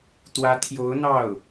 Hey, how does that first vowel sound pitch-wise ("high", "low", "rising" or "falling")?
rising